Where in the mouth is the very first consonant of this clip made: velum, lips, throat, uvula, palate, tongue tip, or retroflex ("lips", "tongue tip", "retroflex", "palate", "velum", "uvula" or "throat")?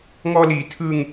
velum